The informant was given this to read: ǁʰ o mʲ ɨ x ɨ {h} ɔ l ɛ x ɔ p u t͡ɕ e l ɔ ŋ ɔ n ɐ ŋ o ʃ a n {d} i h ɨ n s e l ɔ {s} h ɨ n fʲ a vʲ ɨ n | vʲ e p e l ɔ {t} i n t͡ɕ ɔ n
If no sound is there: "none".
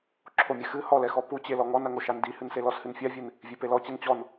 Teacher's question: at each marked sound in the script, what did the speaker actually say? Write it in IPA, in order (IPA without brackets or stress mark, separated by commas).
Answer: h, d, s, t͡ɕ